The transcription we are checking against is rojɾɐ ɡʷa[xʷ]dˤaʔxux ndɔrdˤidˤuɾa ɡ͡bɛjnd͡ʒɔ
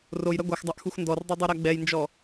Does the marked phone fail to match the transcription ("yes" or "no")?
yes